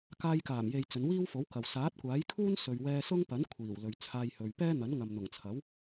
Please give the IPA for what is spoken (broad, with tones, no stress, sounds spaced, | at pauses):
k aː˧ j k aː˨˩ m j e˨ j t͡s ɵ˨˧ n w iː˥ w f o˨˥ w k ɐ˨ w s aː˨˥ t̚ kʷ aː˨˥ j kʰ uː˥ n s ɵ˨ ɥ w ɛː˧ s ʊ˥ ŋ p ɐ˨˥ n kʷʰ iː˨˩ w l ɵ˨ ɥ t͡sʰ aː˧ j h ɵ˨ ɥ p ɛː˥ n̪ ɐ˨˥ n ŋ ɐ˨ m n̪ ʊ˨˩ ŋ t͡sʰ ɐ˨˥ w